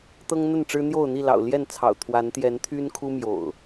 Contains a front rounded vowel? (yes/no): yes